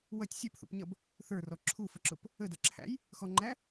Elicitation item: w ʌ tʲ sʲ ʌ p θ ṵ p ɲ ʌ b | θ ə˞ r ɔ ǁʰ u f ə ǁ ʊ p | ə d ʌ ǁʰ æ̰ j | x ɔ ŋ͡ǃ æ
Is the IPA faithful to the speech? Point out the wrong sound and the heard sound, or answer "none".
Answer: none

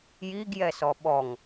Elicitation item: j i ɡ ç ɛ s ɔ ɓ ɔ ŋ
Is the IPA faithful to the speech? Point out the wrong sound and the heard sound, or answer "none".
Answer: ç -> j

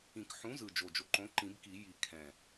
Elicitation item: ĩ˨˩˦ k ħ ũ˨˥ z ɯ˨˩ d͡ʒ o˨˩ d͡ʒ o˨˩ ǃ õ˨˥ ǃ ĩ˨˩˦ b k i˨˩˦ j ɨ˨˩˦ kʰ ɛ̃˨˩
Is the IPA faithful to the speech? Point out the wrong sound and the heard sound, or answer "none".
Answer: ɨ˨˩˦ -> i˨˩˦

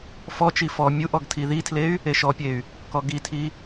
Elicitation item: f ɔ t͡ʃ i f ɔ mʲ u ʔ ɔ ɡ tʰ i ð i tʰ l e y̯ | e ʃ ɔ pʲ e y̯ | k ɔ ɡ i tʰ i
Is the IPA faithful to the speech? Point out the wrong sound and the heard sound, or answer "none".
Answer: none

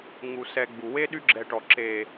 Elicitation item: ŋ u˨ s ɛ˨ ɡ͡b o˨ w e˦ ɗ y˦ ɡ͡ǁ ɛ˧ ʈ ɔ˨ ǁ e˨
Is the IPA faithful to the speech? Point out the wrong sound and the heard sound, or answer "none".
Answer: o˨ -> u˨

